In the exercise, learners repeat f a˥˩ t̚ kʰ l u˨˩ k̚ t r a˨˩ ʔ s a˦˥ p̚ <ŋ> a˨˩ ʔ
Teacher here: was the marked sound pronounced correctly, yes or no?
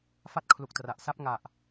yes